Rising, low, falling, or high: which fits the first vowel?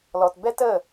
low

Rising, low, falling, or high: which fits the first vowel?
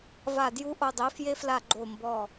falling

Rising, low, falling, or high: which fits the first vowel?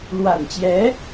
low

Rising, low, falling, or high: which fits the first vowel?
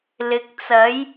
low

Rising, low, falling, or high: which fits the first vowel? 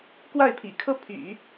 falling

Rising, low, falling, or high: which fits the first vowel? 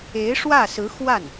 rising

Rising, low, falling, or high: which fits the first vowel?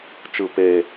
low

